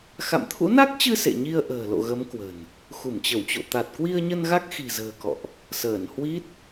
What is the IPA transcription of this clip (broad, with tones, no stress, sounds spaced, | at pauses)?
x a̰˧˨ m t̪ʰ ṵ˧˥ n a˦˥ k̚ t͡ɕ ɨ˧ s ḛ˧˨ ɲ i˧ ə̯ ʔ ə̤ː˨˩ l o̰˧˨ ɣ ə˨˦ m k w ə̤˨˩ n | x u˧˩ m t͡ɕ ə˧˩ w t͡ɕ o̰˧˨ t̪ a˨˩ t̚ k w i˧ ə̯ ɲ ə˧ n ɣ a˦˥ k̚ x i̤˨˩ z ə̤ː˨˩ k ɔ̰˧˨ ʔ | s əː˧˩ n h w i˦˥ t̚